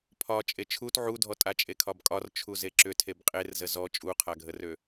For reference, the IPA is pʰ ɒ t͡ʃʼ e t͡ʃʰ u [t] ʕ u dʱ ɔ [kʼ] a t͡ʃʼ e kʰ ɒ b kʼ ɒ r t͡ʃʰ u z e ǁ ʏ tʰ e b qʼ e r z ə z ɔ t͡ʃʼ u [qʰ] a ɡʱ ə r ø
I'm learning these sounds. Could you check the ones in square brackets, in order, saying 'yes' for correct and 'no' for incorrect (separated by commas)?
yes, no, yes